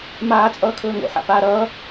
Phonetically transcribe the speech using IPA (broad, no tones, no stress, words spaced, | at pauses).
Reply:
maː t͡sʼʌːkʰɵːŋo̰ ħa̰paːɾʌː